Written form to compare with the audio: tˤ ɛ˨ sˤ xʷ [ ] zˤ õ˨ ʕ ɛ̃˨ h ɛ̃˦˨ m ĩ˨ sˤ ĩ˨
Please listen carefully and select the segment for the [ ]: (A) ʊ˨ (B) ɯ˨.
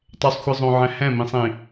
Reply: B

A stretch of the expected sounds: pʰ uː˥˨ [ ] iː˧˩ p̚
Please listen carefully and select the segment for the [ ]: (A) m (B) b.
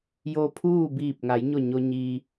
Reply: B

